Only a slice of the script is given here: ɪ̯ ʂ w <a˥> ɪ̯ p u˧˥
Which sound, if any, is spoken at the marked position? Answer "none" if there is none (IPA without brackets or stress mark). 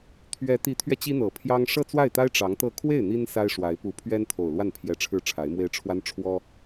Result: a˧˥